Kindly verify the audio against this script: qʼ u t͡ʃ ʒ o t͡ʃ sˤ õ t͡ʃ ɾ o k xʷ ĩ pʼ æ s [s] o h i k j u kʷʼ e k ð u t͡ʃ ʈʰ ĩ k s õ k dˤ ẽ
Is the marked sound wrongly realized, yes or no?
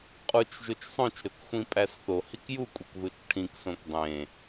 yes